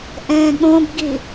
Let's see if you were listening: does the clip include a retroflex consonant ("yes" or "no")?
no